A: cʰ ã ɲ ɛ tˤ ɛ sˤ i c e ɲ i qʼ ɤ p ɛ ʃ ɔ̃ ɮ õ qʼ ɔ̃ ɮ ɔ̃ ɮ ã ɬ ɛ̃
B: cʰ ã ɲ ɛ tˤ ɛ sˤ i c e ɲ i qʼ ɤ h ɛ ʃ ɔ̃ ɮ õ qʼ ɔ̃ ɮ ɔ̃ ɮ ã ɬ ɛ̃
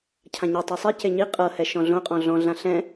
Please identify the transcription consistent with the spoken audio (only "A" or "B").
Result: B